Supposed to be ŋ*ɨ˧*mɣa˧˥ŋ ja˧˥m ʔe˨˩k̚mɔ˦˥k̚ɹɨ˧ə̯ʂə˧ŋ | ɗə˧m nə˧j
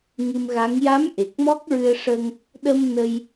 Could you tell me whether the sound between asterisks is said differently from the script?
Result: no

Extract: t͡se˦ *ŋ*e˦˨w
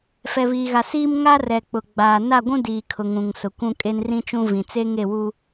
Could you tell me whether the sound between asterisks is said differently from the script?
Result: no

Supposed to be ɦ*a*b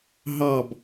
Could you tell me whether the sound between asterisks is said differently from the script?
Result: yes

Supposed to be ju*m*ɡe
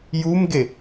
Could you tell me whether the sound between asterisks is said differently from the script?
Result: no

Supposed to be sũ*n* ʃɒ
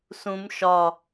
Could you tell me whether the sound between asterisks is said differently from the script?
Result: yes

